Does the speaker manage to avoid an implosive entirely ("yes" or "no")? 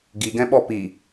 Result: no